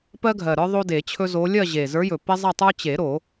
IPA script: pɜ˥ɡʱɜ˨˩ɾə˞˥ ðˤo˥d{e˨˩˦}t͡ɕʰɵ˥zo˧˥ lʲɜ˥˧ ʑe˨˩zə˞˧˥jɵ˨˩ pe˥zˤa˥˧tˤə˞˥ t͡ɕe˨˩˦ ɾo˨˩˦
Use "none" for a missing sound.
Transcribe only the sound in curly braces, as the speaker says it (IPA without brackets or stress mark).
e˨˩˦